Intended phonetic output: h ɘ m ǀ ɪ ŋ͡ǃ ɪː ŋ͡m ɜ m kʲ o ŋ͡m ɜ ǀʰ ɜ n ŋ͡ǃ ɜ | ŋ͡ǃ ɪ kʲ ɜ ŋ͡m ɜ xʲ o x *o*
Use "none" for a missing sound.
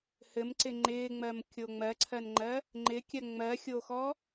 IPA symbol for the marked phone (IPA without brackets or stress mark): ɔ